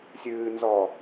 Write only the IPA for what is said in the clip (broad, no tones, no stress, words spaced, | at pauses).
sʲɨːnzɔ